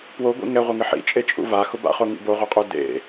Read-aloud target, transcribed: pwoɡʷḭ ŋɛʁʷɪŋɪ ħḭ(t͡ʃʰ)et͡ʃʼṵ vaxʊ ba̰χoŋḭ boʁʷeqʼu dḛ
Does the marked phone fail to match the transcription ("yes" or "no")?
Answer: yes